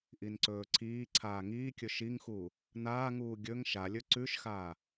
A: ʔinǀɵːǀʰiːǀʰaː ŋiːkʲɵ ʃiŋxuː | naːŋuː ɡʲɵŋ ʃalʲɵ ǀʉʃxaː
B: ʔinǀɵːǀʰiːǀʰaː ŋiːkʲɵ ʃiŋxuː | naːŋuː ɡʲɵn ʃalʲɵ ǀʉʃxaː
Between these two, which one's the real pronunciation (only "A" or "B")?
A